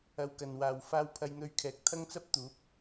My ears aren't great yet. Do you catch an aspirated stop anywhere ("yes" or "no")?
yes